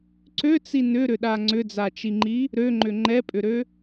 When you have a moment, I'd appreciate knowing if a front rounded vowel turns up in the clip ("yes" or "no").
yes